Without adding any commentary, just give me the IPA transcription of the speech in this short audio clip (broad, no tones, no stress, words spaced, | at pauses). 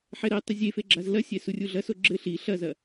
ħɛɾɛtˤɘ zʲefe ɡ͡ǁazlɐsʲɛ surʲuɮɐso ɡ͡ǁɘ ɬi ɬɐzɐ